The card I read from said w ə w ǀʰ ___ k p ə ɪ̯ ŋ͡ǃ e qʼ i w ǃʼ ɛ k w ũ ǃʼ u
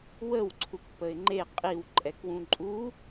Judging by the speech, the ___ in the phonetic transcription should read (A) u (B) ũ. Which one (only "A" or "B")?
A